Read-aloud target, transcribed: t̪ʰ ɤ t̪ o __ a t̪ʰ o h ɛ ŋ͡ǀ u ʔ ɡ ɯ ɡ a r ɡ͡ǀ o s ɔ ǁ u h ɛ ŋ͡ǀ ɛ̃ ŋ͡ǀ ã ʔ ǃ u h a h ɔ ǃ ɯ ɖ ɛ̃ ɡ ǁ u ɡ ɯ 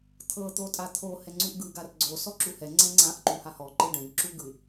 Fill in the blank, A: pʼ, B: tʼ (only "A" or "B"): B